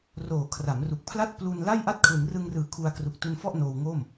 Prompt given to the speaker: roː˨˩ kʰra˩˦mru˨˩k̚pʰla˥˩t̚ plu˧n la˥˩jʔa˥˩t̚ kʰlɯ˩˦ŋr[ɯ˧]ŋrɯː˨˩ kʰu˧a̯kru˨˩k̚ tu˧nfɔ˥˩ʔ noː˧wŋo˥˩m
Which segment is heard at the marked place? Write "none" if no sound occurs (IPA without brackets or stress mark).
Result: ɯ˧